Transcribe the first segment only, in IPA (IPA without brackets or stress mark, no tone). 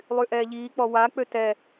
lˠ